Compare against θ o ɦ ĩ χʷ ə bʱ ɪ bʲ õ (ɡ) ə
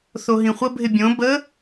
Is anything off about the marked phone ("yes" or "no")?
yes